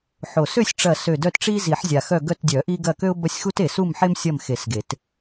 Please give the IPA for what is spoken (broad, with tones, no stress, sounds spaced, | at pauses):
ħ o˨˩ s ø˦˨ sʲ ʈ͡ʂ ɐ˨˩ s ø˨˩ d œ˦˨ t ʈ͡ʂ i˦ z i˨˩˦ ħ zʲ a˨˩ x œ˦˨ ɡ œ˦˨ t dʲ œ˨˩˦ ʔ i˦ ɡ ɐ˦˨ k ø˦ ʊ̯ b ɐ˦ sʲ x u˦ t e˨˩ s u˦˨ m ħ e˦ m sʲ ɐ˦˨ m x e˨˩˦ s ɡ e˨˩˦ t